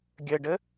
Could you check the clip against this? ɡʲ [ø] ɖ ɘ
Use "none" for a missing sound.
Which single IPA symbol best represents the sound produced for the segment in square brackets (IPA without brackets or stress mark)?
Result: ɘ